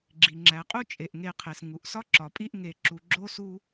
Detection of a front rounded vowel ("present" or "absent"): absent